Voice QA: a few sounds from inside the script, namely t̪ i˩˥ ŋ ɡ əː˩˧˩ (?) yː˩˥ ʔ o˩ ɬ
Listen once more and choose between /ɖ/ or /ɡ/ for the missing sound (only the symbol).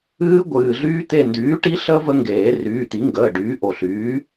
ɖ